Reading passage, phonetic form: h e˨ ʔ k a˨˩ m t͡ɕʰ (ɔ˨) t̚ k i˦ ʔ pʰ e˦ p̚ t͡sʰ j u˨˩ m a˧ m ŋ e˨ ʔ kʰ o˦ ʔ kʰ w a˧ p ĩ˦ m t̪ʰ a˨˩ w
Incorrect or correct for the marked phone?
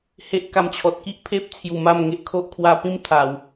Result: correct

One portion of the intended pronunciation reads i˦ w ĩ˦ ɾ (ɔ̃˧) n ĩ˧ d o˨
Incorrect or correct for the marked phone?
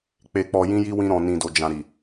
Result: correct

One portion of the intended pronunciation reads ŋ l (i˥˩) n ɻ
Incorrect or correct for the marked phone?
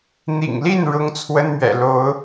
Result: correct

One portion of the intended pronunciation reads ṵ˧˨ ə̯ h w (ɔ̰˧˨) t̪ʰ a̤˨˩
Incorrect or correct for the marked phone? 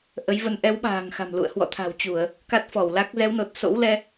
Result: correct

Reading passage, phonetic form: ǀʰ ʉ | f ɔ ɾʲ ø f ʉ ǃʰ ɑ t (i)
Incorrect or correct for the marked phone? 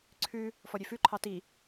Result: correct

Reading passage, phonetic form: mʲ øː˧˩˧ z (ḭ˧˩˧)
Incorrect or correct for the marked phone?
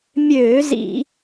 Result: correct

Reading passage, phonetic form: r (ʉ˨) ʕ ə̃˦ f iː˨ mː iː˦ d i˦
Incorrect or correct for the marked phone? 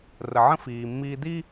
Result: incorrect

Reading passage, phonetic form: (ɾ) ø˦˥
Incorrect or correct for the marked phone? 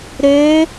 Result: correct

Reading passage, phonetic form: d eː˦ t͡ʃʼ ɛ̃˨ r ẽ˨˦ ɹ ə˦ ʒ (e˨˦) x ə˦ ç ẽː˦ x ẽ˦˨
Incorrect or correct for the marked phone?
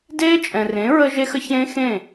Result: incorrect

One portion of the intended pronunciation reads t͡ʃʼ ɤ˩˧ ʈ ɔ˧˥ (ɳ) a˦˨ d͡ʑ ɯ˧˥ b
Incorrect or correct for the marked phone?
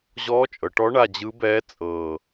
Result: correct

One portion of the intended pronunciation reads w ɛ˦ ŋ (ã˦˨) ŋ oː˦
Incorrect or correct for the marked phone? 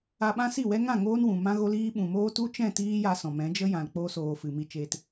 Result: correct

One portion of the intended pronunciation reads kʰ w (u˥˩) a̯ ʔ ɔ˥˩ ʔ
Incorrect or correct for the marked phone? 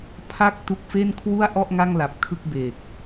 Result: correct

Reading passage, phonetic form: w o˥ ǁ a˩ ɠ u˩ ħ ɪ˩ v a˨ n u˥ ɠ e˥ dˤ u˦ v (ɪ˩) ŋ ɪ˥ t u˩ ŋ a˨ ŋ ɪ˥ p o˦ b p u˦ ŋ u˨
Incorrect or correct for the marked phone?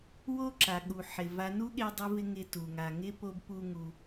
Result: incorrect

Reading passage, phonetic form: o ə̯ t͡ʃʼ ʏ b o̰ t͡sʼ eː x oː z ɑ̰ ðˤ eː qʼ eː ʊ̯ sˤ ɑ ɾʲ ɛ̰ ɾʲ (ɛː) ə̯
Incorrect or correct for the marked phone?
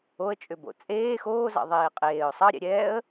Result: correct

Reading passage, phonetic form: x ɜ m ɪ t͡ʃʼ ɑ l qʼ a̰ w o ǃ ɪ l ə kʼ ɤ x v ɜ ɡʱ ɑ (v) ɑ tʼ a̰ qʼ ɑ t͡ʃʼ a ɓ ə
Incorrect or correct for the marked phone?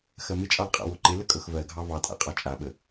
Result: correct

